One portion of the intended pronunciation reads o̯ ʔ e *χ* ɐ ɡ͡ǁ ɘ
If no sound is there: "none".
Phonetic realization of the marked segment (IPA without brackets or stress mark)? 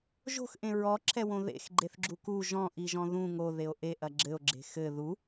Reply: ʔ